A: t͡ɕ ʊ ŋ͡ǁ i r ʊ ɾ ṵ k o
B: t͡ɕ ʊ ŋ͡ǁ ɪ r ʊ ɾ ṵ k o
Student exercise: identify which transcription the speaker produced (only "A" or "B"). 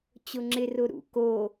B